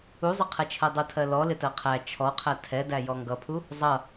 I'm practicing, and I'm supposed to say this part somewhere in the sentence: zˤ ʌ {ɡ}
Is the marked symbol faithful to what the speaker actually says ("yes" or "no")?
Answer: no